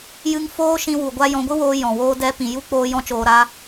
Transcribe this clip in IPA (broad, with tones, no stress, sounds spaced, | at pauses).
j ɨ˧ ŋ f oː˦ ʃ ĩ˧ w u˨ ɡʷ a˧ j ɔ̃˨˦ ɡʷ ɨ˦ w oː˧ j ɔ̃˨ w oː˦ d ɛ˦ p ĩ˨ j u˦ k͡p oː˧ j ɔ̃˦ t͡ʃ oː˧ ɾ a˦